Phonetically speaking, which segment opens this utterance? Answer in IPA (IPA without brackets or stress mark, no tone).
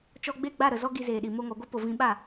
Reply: t͡ʃ